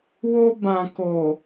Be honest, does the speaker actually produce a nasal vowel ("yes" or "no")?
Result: yes